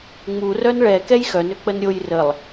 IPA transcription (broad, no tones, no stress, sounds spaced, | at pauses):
ŋ͡m u r œ n ɭ ɛ k ɛ j x œ n ø k͡p ə n ɾʲ o j r ə lˠ